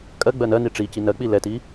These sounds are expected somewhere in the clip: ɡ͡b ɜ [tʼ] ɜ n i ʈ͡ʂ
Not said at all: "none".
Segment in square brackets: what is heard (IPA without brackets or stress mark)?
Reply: n